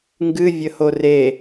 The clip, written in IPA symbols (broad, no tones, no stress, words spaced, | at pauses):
ŋɡɨvʲəho re